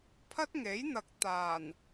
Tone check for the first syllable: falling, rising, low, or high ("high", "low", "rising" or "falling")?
high